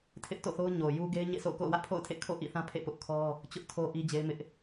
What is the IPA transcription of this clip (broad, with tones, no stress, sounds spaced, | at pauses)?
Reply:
tʰ ɪ˦ ʔ t o̰˦˨ θ o˦ ʊ̯ ɲ o˨ j u˦ ɡ e˦ ɪ̯ ɲ ḛ˦˨ sʰ o̰˦˨ ʊ̯ k o̰˦˨ ʊ̯ w ä˦ ʔ pʰ o̰˦˨ ʊ̯ tʰ ḛ˦˨ kʰ o̰˦˨ ʔ ḭ˦˨ θ ã˦ pʰ ḛ˦˨ p ʊ˦ ʔ kʰ ɔ˦ | t͡ɕ ʊ˦ ʔ tʰ o˦ ʔ i˦ d͡ʑ e˦ ɪ̯ m ɪ˦ ʔ